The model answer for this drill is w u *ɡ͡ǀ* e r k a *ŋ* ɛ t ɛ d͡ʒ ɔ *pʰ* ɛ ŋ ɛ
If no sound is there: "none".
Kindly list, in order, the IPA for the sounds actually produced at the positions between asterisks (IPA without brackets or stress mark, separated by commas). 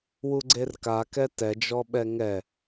ɡ͡ǀ, k, ɓ